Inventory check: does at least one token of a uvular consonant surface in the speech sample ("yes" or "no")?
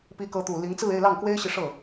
no